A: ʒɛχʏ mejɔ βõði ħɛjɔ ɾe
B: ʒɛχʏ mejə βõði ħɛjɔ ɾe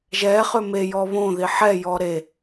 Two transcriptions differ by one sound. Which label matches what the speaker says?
A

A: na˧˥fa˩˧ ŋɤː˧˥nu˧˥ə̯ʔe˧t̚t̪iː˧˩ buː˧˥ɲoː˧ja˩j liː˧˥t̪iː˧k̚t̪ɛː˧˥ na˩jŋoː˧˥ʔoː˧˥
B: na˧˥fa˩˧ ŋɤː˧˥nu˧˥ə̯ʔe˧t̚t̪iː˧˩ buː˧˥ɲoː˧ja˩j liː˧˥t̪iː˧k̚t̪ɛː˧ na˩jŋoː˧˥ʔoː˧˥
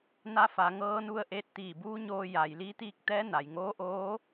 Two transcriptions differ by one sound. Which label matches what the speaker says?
A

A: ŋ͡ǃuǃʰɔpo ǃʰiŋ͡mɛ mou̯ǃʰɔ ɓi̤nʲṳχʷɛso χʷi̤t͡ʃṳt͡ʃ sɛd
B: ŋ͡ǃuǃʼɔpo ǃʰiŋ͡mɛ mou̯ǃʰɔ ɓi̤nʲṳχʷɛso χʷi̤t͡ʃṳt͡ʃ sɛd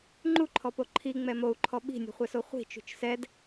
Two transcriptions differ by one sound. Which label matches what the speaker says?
A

